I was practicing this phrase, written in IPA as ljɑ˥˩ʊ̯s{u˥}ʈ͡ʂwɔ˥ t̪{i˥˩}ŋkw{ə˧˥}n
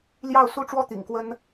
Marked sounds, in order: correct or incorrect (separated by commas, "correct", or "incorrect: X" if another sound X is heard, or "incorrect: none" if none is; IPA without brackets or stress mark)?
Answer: correct, incorrect: ḭ˨˩, incorrect: ə˥